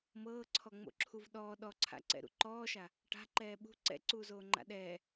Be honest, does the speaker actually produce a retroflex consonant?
yes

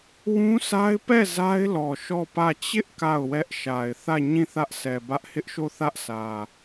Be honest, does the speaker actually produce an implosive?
no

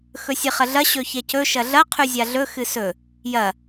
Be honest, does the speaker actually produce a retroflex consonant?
no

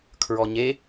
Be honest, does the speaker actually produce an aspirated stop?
yes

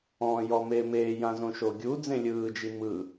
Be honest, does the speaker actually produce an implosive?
no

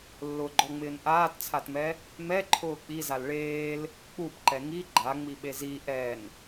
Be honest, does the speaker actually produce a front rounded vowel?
no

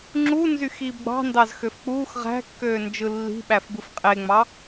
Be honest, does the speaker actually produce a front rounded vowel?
yes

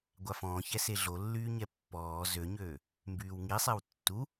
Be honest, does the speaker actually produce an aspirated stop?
no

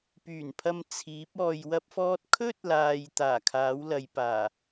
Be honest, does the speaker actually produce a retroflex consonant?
no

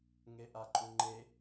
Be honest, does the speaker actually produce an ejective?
yes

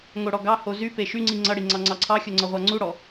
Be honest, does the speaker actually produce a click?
yes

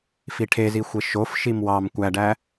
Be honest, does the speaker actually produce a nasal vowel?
no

